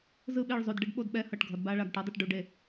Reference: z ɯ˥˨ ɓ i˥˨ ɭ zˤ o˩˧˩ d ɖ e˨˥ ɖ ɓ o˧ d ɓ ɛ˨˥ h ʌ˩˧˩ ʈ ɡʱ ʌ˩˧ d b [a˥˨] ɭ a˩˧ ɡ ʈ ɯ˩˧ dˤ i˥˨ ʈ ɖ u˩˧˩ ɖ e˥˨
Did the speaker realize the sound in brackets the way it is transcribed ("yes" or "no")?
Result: no